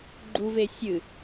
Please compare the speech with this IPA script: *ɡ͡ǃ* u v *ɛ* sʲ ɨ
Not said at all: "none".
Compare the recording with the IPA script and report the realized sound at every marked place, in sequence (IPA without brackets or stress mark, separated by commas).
ɡ͡ǃ, e